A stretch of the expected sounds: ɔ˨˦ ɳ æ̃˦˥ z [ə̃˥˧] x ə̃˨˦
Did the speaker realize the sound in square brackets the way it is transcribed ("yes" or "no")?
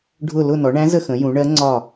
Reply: no